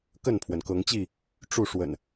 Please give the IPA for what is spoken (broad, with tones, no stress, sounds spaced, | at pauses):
k ə˥˨ n pʰ w ə˩ n k ɤ˨˦ ŋ t͡ɕ i˥˨ | ʈ͡ʂ u˥˨ ʂ w ə̰˨˩ n